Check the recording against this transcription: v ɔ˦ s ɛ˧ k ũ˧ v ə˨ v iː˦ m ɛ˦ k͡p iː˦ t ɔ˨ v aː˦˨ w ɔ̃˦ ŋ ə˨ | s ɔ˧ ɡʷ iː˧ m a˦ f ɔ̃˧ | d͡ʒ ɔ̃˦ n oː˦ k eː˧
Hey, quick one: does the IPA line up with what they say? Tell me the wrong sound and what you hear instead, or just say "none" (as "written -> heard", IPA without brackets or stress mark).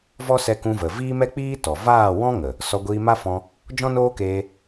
none